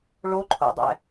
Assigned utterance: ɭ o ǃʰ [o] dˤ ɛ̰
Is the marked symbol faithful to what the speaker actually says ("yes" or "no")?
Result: no